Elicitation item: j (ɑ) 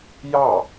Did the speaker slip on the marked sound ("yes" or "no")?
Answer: no